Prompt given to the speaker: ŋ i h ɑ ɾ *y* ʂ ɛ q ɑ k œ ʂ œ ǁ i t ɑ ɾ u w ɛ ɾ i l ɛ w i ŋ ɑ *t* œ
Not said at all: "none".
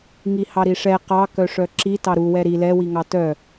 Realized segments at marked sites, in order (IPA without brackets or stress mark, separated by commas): i, t